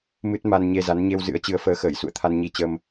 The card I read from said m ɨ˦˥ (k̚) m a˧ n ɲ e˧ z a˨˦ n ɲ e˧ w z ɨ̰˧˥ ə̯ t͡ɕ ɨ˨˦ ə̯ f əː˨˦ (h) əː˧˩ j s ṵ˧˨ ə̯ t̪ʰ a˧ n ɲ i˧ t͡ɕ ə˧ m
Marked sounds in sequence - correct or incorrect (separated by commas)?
incorrect, incorrect